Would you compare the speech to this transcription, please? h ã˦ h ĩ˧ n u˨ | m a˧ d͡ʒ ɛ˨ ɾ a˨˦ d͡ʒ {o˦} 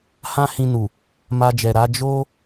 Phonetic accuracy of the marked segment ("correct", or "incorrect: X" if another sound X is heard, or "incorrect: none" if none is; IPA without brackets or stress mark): correct